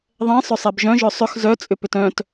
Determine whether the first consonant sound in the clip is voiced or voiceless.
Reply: voiced